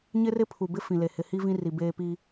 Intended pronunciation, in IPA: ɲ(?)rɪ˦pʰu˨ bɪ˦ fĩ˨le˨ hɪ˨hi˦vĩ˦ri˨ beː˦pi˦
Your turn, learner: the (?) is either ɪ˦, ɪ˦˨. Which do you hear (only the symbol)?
ɪ˦